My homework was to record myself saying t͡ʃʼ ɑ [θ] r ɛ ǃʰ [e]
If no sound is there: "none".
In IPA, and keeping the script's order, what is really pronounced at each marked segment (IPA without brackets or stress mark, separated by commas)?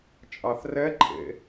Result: θ, ḛ